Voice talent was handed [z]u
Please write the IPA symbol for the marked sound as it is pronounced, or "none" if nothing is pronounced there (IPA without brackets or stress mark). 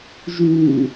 ʒ